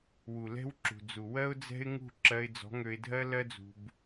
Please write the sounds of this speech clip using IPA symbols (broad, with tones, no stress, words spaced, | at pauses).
wu˨lɛ̤˦wǁṳ˨d͡zu˨ wɜ˦ʊ̯d͡zɛ̤˦ɪ̯ŋṳ˦˨ ǁɜ˧ɪ̯d͡zɔ̤˨˦ŋø˧ɪ̯dʱɜ˦ lɜ˦d͡zṳ˧b